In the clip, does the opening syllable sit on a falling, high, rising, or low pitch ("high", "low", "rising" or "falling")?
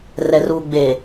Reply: low